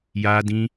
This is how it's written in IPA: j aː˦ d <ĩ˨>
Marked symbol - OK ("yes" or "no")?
no